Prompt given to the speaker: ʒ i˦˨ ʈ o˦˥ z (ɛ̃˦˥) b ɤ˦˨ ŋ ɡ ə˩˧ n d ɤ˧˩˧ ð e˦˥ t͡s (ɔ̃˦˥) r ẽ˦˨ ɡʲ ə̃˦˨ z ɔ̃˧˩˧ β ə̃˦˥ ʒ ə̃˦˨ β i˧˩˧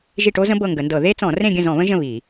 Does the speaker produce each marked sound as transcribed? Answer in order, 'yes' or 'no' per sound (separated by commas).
no, no